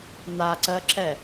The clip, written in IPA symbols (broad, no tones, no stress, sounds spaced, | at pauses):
n̪ a ǀ ɜ ǁ ɛ